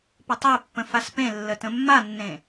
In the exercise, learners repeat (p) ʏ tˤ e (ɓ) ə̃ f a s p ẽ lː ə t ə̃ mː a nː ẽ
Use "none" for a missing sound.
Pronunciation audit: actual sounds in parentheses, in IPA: p, pː

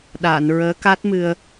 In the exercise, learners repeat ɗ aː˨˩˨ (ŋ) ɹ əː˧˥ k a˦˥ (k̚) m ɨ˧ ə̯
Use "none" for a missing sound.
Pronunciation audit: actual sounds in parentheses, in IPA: n, t̚

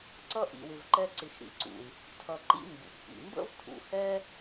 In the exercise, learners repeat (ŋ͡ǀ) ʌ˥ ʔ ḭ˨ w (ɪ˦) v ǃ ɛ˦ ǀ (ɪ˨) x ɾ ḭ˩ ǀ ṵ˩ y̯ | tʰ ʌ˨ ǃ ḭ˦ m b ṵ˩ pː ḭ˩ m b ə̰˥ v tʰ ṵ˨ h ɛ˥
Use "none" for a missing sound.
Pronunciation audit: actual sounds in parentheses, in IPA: ǀ, ɪ˨, ɪ˨

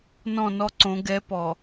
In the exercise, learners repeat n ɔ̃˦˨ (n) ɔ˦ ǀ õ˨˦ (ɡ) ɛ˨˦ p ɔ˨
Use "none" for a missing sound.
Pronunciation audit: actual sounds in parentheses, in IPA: n, ɡ

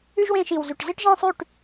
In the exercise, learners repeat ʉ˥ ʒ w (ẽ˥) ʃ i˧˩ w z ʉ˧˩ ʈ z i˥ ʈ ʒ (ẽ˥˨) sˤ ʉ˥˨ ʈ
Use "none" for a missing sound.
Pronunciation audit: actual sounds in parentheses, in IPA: ẽ˥˨, ĩ˥˨

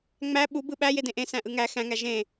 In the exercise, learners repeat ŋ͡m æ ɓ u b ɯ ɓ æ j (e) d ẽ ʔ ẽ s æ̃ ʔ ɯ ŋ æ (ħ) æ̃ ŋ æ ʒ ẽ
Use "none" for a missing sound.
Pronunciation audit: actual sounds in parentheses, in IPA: e, x

